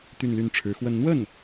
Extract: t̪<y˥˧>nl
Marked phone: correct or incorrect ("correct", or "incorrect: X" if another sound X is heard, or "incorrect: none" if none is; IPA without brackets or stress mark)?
correct